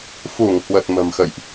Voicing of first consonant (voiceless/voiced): voiceless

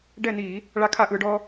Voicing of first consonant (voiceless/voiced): voiced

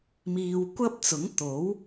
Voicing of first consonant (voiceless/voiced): voiced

